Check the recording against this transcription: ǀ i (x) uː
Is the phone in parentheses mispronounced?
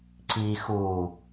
no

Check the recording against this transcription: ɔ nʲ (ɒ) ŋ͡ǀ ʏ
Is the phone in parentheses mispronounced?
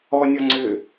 no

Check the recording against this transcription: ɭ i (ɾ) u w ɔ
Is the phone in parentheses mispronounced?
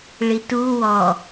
yes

